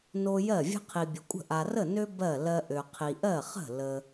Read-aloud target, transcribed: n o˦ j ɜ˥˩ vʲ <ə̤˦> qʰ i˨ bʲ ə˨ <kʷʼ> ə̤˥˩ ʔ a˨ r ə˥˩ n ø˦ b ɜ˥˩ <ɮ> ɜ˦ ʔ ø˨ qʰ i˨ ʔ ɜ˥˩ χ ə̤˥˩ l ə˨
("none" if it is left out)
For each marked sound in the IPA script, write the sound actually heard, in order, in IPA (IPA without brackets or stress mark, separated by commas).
ə̤˦, kʷʼ, l